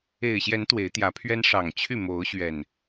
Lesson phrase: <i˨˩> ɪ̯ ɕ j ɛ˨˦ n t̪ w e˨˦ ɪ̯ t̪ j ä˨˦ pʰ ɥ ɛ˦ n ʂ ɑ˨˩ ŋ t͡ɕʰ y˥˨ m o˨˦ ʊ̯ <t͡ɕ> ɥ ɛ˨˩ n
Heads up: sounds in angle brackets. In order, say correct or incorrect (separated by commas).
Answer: incorrect, incorrect